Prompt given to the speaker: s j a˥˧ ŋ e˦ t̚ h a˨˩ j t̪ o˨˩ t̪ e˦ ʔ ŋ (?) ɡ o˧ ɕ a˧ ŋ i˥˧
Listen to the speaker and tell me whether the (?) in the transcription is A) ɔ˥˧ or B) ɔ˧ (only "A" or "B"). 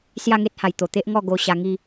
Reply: A